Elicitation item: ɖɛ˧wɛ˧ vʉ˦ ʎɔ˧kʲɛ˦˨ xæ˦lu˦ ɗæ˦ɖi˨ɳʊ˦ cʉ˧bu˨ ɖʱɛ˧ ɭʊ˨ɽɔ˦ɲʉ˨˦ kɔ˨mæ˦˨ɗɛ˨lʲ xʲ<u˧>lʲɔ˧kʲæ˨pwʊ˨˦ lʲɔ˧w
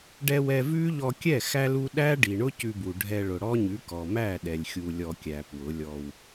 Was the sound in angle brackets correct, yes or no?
yes